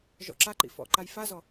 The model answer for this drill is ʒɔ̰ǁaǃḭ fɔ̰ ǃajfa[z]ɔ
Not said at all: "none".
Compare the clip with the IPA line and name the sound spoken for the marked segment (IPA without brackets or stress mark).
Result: z